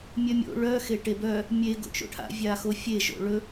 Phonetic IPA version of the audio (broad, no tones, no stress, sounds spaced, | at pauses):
mʲ œ mʲ o̰ ɭ œ x e ʈ e b œ | mʲ e ɡ o̰ t͡ʃ o̰ ʈʰ a̰ vʲ a x o fʲ e ʒ o̰ ɭ ɵ